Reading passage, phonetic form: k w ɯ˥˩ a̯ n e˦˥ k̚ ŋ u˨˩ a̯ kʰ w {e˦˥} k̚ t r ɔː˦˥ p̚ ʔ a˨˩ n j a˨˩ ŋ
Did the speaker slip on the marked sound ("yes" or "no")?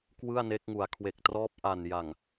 yes